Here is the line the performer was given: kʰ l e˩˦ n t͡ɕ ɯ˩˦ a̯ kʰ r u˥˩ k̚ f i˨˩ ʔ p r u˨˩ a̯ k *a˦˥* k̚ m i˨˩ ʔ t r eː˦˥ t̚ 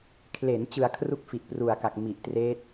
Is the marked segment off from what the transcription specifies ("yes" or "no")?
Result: yes